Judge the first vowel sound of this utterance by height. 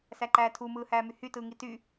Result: low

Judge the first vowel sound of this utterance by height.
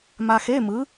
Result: low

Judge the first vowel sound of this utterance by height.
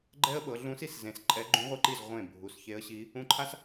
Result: mid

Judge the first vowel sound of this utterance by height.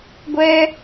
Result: mid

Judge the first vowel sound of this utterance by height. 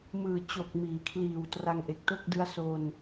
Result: high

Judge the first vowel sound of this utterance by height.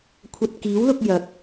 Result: low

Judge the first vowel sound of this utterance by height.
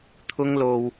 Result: high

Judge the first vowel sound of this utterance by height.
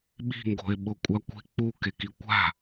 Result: high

